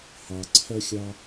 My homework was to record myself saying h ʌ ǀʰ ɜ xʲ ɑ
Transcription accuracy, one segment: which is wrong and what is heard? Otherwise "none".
ʌ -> ɑ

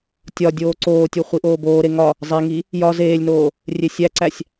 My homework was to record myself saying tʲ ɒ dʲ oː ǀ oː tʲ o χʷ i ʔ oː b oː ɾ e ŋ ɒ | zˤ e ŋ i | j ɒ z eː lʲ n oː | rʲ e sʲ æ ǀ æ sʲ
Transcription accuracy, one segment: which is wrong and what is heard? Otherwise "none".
none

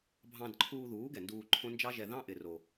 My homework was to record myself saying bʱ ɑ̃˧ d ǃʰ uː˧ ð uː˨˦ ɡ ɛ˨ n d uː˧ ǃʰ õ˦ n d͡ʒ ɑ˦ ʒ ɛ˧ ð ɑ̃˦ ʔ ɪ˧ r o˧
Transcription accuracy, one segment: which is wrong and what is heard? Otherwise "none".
none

